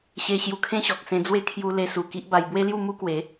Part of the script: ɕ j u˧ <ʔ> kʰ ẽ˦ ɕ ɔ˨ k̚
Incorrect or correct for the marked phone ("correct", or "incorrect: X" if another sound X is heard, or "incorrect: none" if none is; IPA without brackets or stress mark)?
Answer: incorrect: none